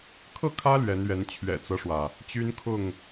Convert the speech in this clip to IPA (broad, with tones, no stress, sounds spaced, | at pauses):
kʰ ɤ˥˨ kʰ ä˦ l ɥ ɛ˨˦ n ɥ ɛ˨˦ n t͡ɕʰ ɥ ɛ̰˨˩ t͡s ɤ˦ ʂ w ä˩ | t͡ɕ y˦ n kʰ ʊ˥˨ ŋ